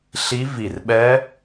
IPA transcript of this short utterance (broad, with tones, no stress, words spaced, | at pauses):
ɬi˦˥vi˧˩rɓɛ˦˥